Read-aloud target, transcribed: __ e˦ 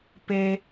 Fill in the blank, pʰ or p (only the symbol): p